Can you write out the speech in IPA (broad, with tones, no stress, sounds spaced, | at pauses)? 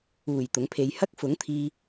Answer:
uː˨˩ j t̪ ʊ˨˥ ŋ pʰ e˧ j h ɐ˥ k̚ f ʊ˨˥ ŋ t̪ʰ iː˧